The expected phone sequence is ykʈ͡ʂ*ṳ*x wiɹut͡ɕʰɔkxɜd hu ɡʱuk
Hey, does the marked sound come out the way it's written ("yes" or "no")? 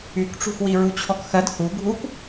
yes